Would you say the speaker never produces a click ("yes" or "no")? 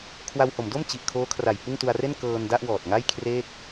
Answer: yes